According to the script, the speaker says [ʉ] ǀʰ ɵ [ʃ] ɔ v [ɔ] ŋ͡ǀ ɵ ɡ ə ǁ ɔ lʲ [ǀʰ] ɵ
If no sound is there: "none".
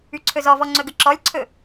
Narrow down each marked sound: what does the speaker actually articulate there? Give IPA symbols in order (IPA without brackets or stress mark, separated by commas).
ʉ, z, ɔ, ǀʰ